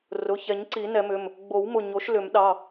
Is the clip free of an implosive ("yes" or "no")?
no